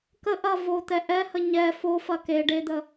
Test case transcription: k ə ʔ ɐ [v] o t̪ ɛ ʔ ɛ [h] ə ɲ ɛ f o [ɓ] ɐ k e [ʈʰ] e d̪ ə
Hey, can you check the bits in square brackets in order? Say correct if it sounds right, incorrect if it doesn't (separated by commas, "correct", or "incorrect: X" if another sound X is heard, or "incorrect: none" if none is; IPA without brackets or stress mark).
correct, correct, incorrect: f, incorrect: ɖ